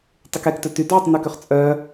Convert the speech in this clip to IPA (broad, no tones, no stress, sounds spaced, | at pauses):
tˤ y k ɛ k t œ t y d ʕ ø tˤ n ɔ k ø χ t͡sʼ œ